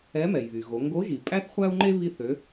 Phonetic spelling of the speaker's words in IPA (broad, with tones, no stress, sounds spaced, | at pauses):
ɛ˧˥ m ɛ˩ j β y˩ ɣ o˩˧ ŋ ɡ o˧˥ ʒ i˩ pʼ æ˥ θ χʷ æ˥ u̯ ŋ͡ǃ e˥ β i˧ θ ø˩˧